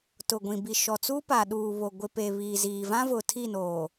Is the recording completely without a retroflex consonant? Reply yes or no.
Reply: yes